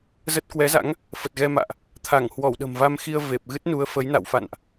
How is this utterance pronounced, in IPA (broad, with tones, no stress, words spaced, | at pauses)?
zə˦˥t̚ kwɛ˨˦za̰˧˥ŋ | fə˨˩t̚ɣɛ˧ma̰ː˧˨ʔ | t̪ʰa˧˩ŋhwɔ˧˩wɗə̤˨˩m va˧mxi˧ə̯ ve˨˩p̚ ɣɨ˦˥t̚nu˨˦ə̯ fə˨˦jna̰˧˨w fa̰˧˨nʔ